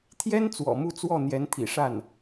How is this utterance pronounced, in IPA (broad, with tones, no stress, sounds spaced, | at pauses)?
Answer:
t̪ʰ j ɛ˥ n t͡s w ɔ̰˨˩ m u˥˧ t͡s w ɔ˥˩ n̪ j ɛ˧˥ n t̪ʰ ḭ˨˩ ʂ a˥˩ n